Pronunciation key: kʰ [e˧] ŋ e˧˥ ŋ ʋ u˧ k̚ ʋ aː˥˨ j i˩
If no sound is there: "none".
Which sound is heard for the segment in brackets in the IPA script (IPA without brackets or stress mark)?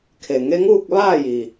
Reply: e˩